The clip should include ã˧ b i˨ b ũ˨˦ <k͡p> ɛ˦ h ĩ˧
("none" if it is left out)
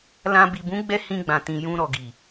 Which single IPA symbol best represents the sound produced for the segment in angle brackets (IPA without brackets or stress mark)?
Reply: ɡ͡b